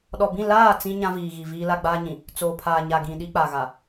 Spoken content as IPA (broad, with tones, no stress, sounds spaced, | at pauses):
ɗ ɔ˨ b ĩ˦˨ l aː˦˨ t͡s ĩ˦ ɲ ã˦ v iː˨ ɣ i˨ v iː˦ l a˦ ɡ͡b aː˦ ɲ ĩ˨ | t͡s oː˨ pʰ aː˨ ɲ a˨ ɡ ĩ˨ ɗ i˦ k͡p a˨ ɣ a˨